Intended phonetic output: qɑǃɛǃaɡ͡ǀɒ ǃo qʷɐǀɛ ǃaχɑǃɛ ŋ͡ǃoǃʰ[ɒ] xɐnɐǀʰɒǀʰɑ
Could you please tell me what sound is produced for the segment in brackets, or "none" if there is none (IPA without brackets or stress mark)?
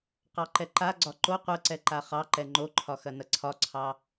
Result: ɒ